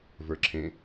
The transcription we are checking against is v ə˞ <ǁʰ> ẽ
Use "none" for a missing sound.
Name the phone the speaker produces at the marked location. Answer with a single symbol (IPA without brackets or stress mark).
ǁʰ